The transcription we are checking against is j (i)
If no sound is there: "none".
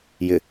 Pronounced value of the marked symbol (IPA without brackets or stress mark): ɪ